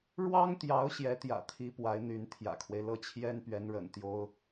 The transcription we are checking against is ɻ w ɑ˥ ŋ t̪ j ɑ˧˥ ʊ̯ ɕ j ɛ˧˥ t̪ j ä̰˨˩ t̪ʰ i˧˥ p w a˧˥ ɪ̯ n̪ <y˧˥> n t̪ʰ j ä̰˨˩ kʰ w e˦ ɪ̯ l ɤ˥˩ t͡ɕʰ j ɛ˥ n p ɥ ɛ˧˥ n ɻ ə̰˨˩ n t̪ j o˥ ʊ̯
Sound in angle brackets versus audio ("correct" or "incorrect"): correct